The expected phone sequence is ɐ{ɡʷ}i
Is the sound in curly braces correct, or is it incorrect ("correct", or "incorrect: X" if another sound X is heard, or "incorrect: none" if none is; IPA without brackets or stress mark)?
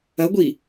correct